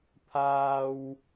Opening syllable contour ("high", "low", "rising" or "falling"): high